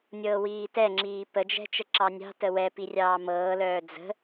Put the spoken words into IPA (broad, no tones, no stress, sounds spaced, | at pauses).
nʲ ɤː w iː t ɛ ŋ͡ǁ iː p ə d͡ʒ ɛ̤ t͡ʃ ə ǁ ɑ nʲ ɑ̤ t ə w ɛ p i rʲ ɑː m ɤː l œː d͡z ə̤